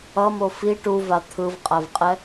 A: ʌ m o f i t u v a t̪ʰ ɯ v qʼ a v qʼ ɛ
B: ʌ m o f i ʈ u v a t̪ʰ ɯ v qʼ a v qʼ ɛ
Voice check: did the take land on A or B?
B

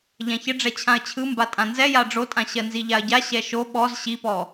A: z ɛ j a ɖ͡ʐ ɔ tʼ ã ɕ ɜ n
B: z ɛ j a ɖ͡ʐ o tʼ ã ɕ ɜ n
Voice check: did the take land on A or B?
B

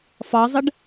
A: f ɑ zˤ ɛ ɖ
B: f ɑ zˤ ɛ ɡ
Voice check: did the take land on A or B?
A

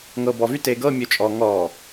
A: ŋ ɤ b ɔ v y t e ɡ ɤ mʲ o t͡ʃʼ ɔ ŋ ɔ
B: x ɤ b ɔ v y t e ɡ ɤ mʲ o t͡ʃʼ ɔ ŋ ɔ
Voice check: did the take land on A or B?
A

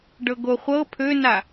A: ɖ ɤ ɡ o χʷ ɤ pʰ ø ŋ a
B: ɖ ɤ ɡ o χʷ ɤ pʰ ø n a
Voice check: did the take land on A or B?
B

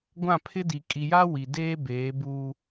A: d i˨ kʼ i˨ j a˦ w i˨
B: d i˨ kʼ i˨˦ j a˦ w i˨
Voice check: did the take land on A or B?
A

